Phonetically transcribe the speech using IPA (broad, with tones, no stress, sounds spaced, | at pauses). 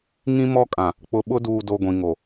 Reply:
ŋ ĩ˦ m ɔ˦ kʼ ã˨ | k͡p ʊ˨ ɓ ʊ˦ d uː˨ d o˨ ɡʷ ĩ˨ ŋ o˨